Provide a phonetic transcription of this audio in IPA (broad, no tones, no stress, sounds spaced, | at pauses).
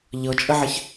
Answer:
ʎ ɤ t͡ʃʼ ə ʕ ɘ ç